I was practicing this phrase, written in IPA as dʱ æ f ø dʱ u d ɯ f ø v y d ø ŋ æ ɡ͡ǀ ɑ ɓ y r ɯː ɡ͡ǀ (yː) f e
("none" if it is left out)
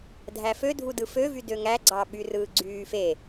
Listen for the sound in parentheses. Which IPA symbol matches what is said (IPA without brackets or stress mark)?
yː